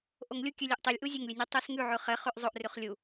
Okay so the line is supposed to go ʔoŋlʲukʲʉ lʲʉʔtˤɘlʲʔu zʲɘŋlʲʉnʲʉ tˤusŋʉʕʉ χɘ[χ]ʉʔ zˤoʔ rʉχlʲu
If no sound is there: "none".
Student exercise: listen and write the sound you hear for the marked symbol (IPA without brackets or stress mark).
χ